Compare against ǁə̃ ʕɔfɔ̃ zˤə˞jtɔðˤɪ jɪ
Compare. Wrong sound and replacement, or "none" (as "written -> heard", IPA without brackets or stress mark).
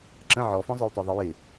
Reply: none